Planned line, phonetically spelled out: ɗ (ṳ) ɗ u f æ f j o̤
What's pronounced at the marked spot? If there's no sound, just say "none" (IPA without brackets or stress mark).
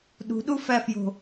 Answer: ṳ